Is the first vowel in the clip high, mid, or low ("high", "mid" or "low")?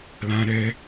low